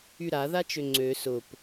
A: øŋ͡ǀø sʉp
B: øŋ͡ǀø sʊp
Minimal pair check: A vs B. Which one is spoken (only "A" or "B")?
B